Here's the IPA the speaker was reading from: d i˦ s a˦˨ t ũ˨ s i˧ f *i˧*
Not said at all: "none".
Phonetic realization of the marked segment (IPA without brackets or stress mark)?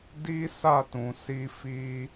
i˦